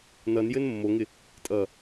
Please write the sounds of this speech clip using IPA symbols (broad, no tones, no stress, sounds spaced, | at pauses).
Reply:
n ʌ n j ɘ n mː o ŋ ɪ | tʼ ʌ